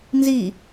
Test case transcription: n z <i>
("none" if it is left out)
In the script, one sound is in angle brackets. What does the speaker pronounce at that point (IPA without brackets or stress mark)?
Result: i